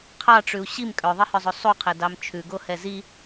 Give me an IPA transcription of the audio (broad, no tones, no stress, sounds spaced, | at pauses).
qʰ ɑ ʈ͡ʂ ʉ u̯ ɕ i m kʼ œ ðˤ i h œ zˤ o sˤ u qʰ ɛ d ɑ m t͡ʃʰ ʉ ɡ o h ɛ z i